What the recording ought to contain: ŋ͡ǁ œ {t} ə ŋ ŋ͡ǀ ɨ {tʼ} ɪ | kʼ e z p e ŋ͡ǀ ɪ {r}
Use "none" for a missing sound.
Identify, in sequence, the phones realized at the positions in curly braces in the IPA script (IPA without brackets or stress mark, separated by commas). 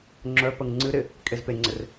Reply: p, ɾ, r